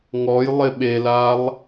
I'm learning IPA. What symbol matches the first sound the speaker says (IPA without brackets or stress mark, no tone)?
ŋ